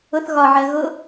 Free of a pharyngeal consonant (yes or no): no